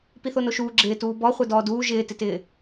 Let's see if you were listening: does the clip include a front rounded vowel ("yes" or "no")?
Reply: no